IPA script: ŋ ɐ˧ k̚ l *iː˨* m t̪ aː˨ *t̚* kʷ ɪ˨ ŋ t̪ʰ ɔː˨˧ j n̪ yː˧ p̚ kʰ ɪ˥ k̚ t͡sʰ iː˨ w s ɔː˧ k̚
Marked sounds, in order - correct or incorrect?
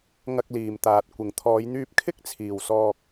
correct, correct

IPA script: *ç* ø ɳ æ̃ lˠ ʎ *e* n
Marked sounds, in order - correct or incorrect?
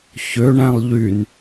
correct, incorrect: y

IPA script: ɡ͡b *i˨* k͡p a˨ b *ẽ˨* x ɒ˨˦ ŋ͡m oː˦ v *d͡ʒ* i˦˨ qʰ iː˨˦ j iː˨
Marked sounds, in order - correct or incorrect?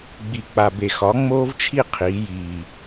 correct, incorrect: e˨, incorrect: t͡ʃʰ

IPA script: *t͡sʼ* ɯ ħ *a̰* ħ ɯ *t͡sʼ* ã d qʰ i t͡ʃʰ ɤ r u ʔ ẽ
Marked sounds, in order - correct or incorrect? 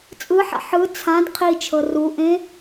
correct, correct, incorrect: t͡sʰ

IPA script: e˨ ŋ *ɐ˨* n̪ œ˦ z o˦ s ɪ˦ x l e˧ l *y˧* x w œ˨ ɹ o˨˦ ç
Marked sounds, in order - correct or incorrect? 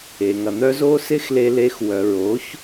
correct, incorrect: e˧

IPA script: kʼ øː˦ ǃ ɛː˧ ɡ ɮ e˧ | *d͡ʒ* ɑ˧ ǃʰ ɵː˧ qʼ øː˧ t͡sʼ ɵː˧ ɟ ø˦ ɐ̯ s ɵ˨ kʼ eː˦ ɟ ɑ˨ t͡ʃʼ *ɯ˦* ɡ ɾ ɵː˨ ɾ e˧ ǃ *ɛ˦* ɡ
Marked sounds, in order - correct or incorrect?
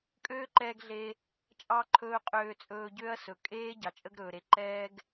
incorrect: t͡ʃʼ, incorrect: ə˦, incorrect: ɛː˦

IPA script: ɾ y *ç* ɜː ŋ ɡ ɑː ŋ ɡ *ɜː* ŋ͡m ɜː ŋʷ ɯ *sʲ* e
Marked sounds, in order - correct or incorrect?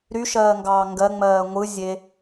incorrect: ʃ, incorrect: ɜ, incorrect: zʲ

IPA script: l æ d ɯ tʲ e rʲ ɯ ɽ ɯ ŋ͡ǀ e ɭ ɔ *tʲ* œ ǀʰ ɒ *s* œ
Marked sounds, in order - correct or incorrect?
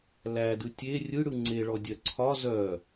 incorrect: dʲ, incorrect: z

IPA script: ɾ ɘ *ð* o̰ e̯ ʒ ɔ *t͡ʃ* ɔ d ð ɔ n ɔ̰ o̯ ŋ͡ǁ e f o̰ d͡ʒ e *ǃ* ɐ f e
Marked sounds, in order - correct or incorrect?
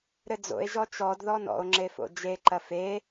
incorrect: d͡z, correct, correct

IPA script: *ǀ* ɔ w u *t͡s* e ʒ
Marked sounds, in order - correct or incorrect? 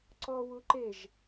correct, incorrect: ǃ

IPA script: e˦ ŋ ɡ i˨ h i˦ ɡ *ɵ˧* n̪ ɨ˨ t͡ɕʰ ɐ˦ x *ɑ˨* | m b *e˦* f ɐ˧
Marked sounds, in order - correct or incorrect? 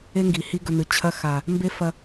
correct, incorrect: a˨, correct

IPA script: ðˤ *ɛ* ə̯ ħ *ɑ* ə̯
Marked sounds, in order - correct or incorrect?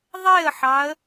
incorrect: e, correct

